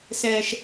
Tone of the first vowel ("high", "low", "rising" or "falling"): low